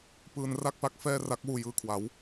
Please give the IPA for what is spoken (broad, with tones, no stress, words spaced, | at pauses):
pɯː˧nra˥˩k̚pa˦˥k̚ fɛː˥˩ ra˦˥k̚ wuː˧jɯː˧kʰwa˩˦w